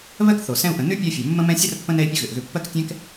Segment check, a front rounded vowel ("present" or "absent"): present